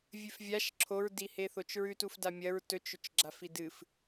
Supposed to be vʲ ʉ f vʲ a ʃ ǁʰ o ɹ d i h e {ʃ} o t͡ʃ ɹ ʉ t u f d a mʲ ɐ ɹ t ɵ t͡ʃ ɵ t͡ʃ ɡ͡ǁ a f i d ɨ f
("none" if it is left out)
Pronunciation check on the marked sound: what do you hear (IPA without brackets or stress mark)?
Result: θ